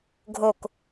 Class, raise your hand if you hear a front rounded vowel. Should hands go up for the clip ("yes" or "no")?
no